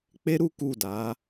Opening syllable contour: high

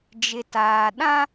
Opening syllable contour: low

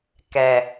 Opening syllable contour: low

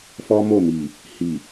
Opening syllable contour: high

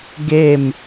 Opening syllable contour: falling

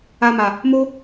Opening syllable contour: low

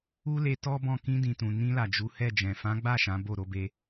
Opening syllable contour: high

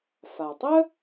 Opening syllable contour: low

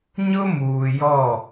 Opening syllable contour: high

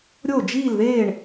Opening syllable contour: falling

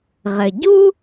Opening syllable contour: low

